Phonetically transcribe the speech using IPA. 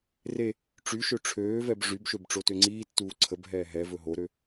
re | ʈ͡ʂyʃø ʈ͡ʂʰøːvɛb ʐybʃøb ʈ͡ʂotøŋ͡ǀiːtːuː ǀʰəbɦɛː ɦɛ vɵɦoɾø

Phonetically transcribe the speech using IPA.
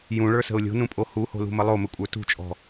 jũɭə˞sə̤ʊ̯ lʲo̤nũpʼo huho̤lṳmə lˠomɘkʷʼə˞ tṳt͡ʃʼɔ̤

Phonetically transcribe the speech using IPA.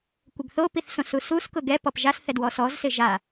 kʷɪɡθopiθsõ susus kʊɡɛ pɔpʒasθɛ dwɔsɔzsɪ ʒa

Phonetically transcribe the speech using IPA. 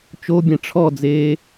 t͡ʃobʲɛ̃ ʈ͡ʂʰɔd͡zeː

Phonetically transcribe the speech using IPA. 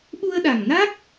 ɓu˧ə̯ɗa˨˩ŋna˦˥k̚

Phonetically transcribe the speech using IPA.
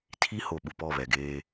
tʰi˦ho˨ ɓu˨pɔ˦˨βɛ˨ɡeː˦

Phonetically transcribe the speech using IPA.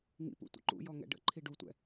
ŋḭpṵ tʷə̰ǃṵjɔ ŋɛ̰ɖə̰ǃʰi ɖutʷɛ̰

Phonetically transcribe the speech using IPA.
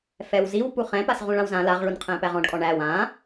fɛwziw puχɛ̃pas ʁũɭãwzã laʁɭunqʰɛ̃ pæʁɔ̃ɖkʼɔ ɳæw ã

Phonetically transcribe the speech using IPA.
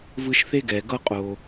vɯ˦ʃ θe˦ɡɛ˨ɡɤ˦ qʼo˧

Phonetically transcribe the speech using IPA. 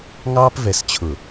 ŋɑː˦pvɛ˨st͡ɕʰʊ˨

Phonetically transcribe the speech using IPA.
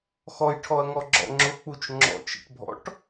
xɔjʈʰɔɐ̯ŋɔɡ͡ǁɔ̰ ŋ͡ǁʊk͡put͡ʃ ŋ͡ǁɔ̰t͡ʃə̰ʈbʱɔ̰ʈ

